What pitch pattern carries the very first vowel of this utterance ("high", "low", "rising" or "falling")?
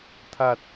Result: low